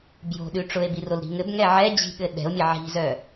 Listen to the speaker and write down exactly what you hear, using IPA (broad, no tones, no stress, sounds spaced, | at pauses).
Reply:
b j o̤ ɗ ʉ ʈ͡ʂ ʊ e̯ b i r o l ɾ i̤ ŋ ɘ b ŋ ɛ ʕ ɛ d͡ʑ i̤ ɠ ɘ ɗ ɛ̤ o̯ mʲ ɘ ʕ i̤ z œ